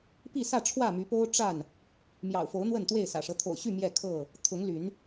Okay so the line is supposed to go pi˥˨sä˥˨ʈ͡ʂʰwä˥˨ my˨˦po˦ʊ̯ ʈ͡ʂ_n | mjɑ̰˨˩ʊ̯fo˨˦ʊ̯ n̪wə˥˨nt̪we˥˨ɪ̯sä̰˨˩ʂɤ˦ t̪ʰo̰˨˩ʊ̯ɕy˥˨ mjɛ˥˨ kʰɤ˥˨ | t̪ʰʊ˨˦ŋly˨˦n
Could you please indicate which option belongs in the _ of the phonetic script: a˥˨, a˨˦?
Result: a˥˨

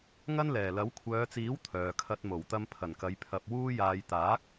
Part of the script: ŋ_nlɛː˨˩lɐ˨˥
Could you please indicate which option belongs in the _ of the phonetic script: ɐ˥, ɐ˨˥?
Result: ɐ˥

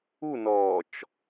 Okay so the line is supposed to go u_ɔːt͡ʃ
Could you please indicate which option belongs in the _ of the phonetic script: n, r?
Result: n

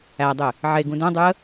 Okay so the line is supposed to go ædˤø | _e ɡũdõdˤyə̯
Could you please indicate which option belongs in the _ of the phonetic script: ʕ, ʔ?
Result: ʕ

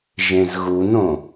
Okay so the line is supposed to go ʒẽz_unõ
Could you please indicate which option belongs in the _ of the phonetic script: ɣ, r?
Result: ɣ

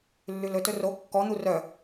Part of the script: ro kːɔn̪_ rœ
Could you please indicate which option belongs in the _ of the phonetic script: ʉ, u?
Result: u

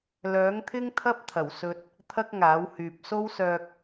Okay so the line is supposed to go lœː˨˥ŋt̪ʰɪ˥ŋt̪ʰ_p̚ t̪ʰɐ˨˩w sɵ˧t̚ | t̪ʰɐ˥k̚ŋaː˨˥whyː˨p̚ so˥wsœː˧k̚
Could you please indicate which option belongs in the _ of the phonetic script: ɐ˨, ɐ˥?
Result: ɐ˥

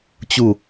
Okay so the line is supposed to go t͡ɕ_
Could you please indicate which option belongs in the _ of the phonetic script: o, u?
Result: u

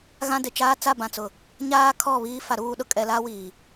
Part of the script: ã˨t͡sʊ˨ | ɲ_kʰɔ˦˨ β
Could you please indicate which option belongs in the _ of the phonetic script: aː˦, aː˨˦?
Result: aː˦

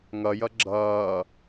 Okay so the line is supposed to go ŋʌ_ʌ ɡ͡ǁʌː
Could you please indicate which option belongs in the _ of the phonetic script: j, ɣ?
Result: j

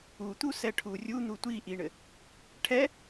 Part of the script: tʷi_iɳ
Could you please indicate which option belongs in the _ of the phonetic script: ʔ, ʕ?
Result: ʔ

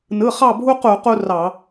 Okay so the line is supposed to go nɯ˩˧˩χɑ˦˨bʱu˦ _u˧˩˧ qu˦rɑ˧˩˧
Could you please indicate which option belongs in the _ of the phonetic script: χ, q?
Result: q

